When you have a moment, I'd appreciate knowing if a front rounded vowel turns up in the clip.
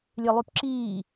yes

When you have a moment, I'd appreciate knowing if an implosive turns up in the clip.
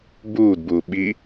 yes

